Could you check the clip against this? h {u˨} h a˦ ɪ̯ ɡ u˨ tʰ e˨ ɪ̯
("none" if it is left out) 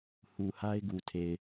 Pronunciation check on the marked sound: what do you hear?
u˨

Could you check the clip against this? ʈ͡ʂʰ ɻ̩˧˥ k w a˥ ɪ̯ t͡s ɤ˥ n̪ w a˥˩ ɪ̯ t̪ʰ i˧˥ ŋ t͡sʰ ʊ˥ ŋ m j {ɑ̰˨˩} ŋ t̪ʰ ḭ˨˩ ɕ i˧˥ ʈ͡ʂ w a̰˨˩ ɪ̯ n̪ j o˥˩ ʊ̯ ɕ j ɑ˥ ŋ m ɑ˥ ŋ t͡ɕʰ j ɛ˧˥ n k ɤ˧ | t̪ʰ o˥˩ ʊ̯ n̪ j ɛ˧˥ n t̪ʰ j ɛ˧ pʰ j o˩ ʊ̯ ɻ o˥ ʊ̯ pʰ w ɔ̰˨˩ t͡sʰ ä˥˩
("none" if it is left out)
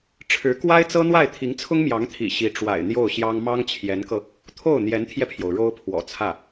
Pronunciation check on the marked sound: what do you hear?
ɑ˧˥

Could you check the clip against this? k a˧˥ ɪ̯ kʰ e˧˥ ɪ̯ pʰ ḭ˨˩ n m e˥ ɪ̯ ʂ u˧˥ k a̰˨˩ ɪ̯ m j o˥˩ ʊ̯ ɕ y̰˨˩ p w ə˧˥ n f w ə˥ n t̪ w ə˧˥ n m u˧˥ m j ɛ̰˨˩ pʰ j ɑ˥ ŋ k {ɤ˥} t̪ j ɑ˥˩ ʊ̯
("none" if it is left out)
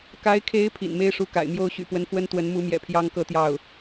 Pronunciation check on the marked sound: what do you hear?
ɤ˥˧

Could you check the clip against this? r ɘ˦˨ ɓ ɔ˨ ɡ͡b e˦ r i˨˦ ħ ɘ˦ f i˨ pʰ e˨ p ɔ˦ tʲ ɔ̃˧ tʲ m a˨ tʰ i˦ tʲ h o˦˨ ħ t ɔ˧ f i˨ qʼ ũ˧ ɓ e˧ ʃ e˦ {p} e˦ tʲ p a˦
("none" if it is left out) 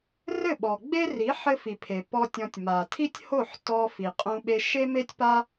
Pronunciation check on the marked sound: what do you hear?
m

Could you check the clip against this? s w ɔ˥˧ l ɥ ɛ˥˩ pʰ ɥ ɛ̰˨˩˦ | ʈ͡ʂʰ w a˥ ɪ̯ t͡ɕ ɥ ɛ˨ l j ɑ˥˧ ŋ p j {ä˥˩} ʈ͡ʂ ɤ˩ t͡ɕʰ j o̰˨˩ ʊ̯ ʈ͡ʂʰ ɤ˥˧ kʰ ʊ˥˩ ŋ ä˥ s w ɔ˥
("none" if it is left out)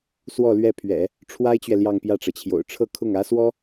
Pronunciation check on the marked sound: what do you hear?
ä˥˩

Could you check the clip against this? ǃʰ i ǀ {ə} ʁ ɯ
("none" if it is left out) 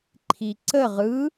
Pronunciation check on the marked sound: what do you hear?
ə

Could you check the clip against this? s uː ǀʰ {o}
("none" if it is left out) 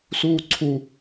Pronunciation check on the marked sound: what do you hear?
u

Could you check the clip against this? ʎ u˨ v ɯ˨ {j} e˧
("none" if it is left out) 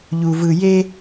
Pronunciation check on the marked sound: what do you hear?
j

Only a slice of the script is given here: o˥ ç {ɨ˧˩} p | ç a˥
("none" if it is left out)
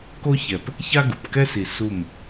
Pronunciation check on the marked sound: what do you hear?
ɛ˧˩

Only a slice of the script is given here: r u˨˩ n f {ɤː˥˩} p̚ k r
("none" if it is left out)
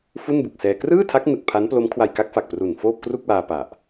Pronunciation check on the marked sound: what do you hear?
oː˥˩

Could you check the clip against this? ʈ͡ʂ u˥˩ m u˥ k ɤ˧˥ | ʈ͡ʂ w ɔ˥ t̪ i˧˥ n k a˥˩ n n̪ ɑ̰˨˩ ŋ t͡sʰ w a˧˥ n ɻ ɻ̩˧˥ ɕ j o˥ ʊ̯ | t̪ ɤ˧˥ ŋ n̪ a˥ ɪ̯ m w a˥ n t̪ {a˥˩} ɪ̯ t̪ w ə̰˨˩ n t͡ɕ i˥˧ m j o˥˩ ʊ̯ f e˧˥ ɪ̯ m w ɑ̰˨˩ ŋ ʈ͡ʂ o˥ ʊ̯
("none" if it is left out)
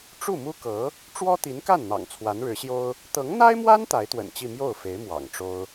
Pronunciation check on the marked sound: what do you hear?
a˧˥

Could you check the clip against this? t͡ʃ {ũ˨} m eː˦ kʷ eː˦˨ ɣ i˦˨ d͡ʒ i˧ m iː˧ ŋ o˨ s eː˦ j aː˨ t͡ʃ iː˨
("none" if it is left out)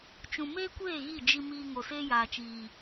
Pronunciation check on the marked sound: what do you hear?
ũ˨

